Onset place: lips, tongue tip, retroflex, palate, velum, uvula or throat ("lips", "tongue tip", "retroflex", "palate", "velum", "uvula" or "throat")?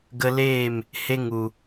velum